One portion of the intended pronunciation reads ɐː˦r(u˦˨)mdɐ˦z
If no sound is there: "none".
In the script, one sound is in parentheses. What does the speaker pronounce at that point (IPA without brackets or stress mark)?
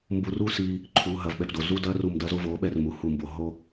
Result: u˦˨